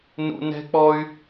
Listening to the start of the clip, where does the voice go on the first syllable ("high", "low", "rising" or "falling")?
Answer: high